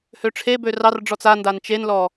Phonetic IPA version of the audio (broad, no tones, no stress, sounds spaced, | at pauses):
h ø ʈ͡ʂʰ e b ø r ɑ r ɖ͡ʐ ɔ t͡s a n d a n t͡ʃ e n l ɔ